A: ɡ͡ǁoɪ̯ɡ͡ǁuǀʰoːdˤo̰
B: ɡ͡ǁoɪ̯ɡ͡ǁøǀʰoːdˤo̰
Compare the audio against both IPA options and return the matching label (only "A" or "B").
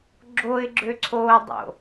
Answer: B